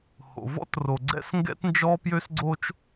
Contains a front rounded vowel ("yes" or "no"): yes